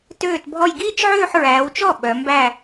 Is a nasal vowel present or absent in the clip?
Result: absent